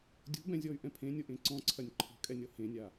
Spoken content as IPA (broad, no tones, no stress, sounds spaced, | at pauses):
dʲ o̤ b ɛ̃ zʲ ɔ y̯ ʔ ɛ̃ pʰ ẽ nʲ o ʔ ẽ ǀ ɔ̃ ǀʰ ɐ nʲ ǃʰ ɔ̤ kʼ ɛ nʲ ɔ h ẽ nʲ a